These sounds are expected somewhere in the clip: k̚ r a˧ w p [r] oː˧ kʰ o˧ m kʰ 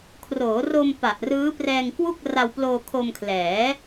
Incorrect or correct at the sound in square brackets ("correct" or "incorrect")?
incorrect